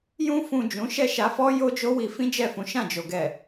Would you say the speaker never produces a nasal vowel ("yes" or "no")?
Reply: no